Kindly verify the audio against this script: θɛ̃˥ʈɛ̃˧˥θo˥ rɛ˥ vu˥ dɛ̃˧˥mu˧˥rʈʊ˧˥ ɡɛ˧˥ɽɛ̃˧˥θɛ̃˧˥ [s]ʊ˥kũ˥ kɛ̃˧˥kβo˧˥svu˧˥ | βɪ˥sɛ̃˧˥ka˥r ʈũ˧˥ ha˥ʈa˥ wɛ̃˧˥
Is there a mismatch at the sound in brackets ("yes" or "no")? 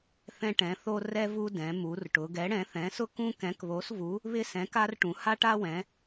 no